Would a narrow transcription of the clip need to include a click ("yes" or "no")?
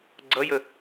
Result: yes